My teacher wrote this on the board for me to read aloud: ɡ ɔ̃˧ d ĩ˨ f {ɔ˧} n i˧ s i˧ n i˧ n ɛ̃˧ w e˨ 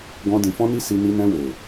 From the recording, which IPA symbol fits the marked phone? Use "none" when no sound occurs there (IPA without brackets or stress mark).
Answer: ɔ̃˧